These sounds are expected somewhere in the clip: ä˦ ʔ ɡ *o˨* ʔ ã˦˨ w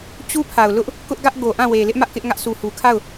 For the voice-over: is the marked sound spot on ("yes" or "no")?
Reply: yes